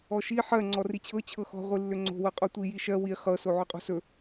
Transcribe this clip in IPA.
ɔ ʃ i ħ ɜ ŋ͡ǀ ɔ r i t͡ɕʰ ɤ t͡ɕʰ ɤ x ɔ̤ ʁʷ i lː ʏ ŋ͡ǀ o̤ w ɤ qʼ o tʷ i j i ʃ ɜ w i χ ɤ s o ʕ ɵ qʼ o̤ s ɵ

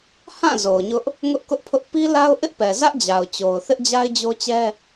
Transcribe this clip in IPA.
h ã˦˨ z o˨ ʊ̯ ɲ ʊ˦ ʔ | ŋ ʊ˦ ʔ k ʊ˦ ʔ pʰ ʊ˦ ʔ p i˦ l a˦ ʊ̯ ʔ ɪ˦ ʔ p ɛ˨ z ä˦ ʔ d͡ʑ a˨ ʊ̯ t͡ɕ o˨ ʊ̯ θ ɪ˦ ʔ d͡ʑ a˦ ɪ̯ d͡ʑ o˦ t͡ɕ ɛ˦

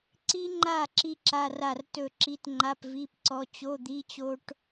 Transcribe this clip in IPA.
ǀ i˥ ŋ͡ǃ a˥˩ ǁ i˥ ǁ a˧˥˧ r a˥˩ r t ɵ˥˩ ǁ i˧˥˧ t ŋ͡ǃ a˧˥˧ p v i˧˥˧ p ǀ ɔ˧˥˧ t͡ɕ o˧˥˧ d̪ i˧˥˧ t͡ɕ o˥ ʈ

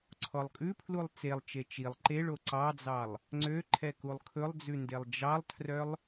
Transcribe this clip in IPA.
ǀʰ ɔ lˠ kʼ ʉ pʰ l u lˠ t͡s e lˠ t͡ʃ e t͡ʃ i lˠ ǃ e ɭ o ǀ ɑ d͡z ɑ lˠ | ŋ͡ǀ ø ǃʰ ɛ k u lˠ kʰ ɵ lˠ d͡z ʉ n d e lˠ d͡ʒ ɑ lˠ tʰ r œ lˠ

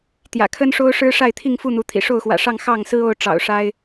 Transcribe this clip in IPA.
t̪ j ä̰˨˩ kʰ ə˦ n ʂ o˦ ʊ̯ ʂ ɻ̩˦ ʂ a˥˨ ɪ̯ t̪ʰ i˥˨ ŋ f u˥˨ n̪ u˨˦ t̪ʰ ḭ˨˩ ʂ o˥˨ ʊ̯ x w ä̰˨˩ ʂ ɑ˥˨ ŋ x ɑ˥˨ ŋ s ɹ̩˦ o˥˨ ʊ̯ ʈ͡ʂ ɑ̰˨˩ ʊ̯ ʂ a˦ ɪ̯

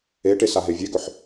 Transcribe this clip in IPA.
e ʈ e s a ɦ e vʲ e ɡ ɵ ħ

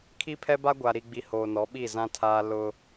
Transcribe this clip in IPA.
kʰ i˦ pʰ ɛ˦ b a˦ ɡʷ a˨ ɾ i˨ ɡ͡b i˨ h oː˨ n ɔ˨˦ ɓ i˦˨ z ã˦ tʰ aː˦ l ʊ˦

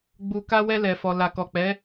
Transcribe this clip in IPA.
ɡ͡b u˨ k a˧ w ɛ˧ l ɛ˨ f ɔ˨ l a˨ k ɔ˨ k͡p ɛ˨˦

